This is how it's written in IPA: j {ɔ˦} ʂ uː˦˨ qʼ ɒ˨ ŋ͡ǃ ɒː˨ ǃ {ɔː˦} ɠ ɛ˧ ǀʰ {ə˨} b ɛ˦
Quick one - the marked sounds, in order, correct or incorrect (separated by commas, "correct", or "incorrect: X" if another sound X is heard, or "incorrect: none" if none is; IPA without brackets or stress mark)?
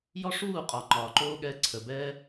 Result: correct, incorrect: oː˦, correct